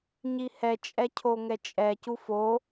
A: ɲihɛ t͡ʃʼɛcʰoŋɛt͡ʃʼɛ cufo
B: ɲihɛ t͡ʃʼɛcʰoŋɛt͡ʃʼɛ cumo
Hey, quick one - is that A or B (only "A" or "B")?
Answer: A